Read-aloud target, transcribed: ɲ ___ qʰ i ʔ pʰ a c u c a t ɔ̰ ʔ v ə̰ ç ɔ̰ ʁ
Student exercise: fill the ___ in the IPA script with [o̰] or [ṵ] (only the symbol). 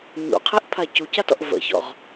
ṵ